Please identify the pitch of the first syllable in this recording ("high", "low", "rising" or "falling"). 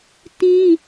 high